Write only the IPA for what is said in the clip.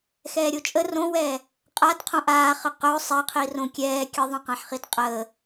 xɛːɾʲot͡ʃʼə rõwɛː | qʼad qʰõʔaːχə qɵ sˤɛqʰirõ kʲɛː kʲə ðˤõqãħχidqʼəː

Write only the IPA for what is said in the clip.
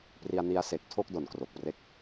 pri˧a̯ni˦˥a̯se˨˩k̚ tʰo˥˩k̚do˨˩nkro˨˩k̚pre˦˥k̚

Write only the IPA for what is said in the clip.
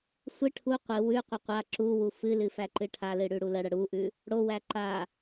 sʷɨ ʈʰu qʷɨ wʉqʷə qʷa ǁuwu fɨlɨ fæǃɨʈʰalɨ ɽʉɽuləɽə ɽuʔʉ | ɽowæ ǃa

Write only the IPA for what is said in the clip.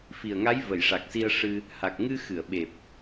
fi˨˩ə̯ŋa˧˥j və˨˩˨jʂa˨˩k̚si˧ə̯ ʂɨ˧ | ha˨˩k̚ ŋɨ˧xɨ˨˩˨ə̯ɓe˨˩p̚

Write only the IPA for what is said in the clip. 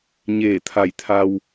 ɲeː˧˩t̪ʰa˧˩jt̪ʰa˧w

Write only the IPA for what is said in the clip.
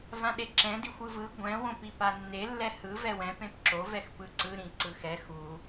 vãɗeǁɛ̃di xʷɯvɯ ɡʷɛ̃wõpi panːe lːɛhɯ vɛwɛ̃ pẽpǁovɛx pɯǀɯɾĩ ǀɯxɛ xu

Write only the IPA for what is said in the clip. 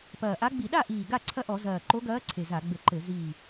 pɐː˨˩ʔa˧˥ɡ͡bi˧˩˧ ɗa˥˨ʔiː˨˩ ɡa˥˨ǀʰɐ˥˨ʔɔ˧˩˧ zɐː˨˩ǃo˧˥ɡɐː˧˥ ǀʰe˨˩za˧˩˧ɡ͡bɘ˧˩˧ǃɘ˧˩˧ ziː˨˩

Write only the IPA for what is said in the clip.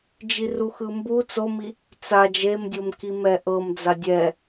d͡ʒiruxɯmbu t͡somi | t͡sa d͡ʒemdʲomki mɛʔɤmd͡za dʲɛ

